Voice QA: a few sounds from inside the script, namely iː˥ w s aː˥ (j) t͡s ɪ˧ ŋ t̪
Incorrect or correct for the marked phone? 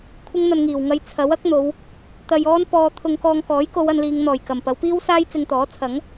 correct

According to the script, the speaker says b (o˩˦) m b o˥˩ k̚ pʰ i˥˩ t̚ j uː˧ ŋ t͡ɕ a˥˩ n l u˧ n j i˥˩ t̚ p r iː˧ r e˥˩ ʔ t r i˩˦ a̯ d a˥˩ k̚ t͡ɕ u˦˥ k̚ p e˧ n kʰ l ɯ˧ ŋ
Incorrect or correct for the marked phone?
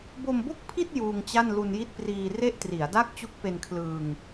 incorrect: o˧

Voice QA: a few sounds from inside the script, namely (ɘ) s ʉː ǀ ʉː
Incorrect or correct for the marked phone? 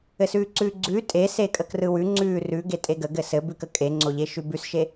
correct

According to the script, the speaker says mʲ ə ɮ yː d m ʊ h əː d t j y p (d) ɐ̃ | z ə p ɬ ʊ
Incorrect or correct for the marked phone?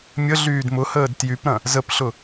incorrect: ɾ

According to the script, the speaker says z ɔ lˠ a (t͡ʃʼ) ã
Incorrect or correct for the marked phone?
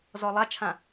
incorrect: t͡ʃʰ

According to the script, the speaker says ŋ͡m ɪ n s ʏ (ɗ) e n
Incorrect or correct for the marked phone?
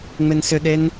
correct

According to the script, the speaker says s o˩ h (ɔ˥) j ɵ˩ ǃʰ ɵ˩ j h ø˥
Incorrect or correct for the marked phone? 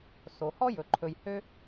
correct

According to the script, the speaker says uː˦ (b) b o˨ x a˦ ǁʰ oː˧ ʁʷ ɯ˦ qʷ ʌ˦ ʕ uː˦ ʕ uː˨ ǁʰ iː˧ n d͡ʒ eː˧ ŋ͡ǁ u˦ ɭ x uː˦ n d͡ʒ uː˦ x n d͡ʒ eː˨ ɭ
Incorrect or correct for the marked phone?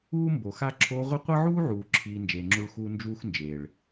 incorrect: m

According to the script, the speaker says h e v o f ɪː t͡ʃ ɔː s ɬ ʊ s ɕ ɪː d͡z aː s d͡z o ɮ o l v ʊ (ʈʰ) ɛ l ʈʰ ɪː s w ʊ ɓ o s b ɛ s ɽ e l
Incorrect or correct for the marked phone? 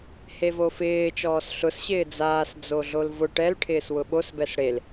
incorrect: ʈ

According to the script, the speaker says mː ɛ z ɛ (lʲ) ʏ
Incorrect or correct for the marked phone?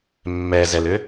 incorrect: l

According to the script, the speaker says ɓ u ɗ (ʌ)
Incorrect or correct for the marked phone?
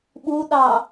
incorrect: ɑ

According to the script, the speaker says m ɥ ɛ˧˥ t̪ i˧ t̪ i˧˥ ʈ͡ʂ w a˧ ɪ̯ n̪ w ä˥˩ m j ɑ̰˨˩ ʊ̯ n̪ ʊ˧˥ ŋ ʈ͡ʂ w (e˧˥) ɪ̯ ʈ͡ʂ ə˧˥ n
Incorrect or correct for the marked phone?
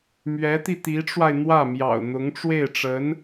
incorrect: e˥˩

